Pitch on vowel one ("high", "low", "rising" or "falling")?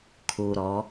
low